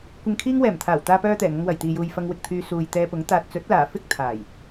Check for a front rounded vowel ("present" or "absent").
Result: present